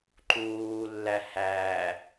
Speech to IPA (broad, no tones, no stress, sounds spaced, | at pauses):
ǃ uː lː æ h æ